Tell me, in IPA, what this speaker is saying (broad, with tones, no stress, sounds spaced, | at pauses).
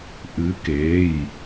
ʔ ɨ˨˦ k eː˩˧˩ j